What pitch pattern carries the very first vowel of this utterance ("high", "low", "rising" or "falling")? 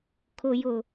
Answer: low